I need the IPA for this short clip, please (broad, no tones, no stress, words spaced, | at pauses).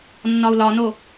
nːɒu̯lɒno